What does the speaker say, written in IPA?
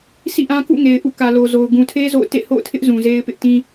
s ḭ˦˨ ʔ ã˦ k ṵ˦˨ ŋ e˨ ɪ̯ ʔ ṵ˦˨ k ä˨ l o˨ z o˨ ʊ̯ ɡ ũ˨ tʰ e˦ z o̰˦˨ ʊ̯ t ḛ˦˨ h o̰˦˨ ʊ̯ tʰ ɪ˦ ʔ z ũ˨ z e˦ ɪ̯ p ɪ˦ ʔ t ĩ˦

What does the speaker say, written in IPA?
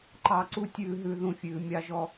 ǃ ɑ˧ ǀ u˦ tʲ ʉː˧ ɦ ʉ˧ ð ũ˧ fʲ ʉː˨ mʲ ɑ˦ ʒ ɔ˦

